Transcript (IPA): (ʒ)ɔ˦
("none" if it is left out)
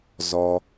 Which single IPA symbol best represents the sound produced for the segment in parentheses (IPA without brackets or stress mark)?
z